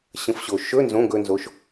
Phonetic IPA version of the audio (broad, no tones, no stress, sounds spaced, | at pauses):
ɕ ə̃ f ɕ o ʃ ɵ n z õ ɡ ɵ n z o ʃ